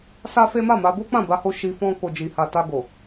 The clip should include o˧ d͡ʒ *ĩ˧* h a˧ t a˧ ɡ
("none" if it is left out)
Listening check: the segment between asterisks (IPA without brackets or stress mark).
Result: i˧